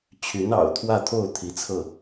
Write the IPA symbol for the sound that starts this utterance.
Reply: t͡ɕʰ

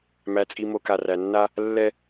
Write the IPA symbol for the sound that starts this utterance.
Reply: m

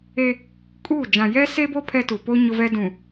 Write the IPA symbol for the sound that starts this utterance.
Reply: e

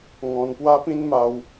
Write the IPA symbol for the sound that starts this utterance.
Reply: ŋ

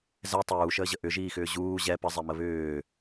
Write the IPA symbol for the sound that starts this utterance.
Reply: z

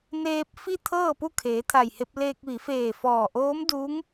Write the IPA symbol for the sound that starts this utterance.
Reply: n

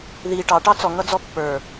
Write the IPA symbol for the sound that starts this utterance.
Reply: ð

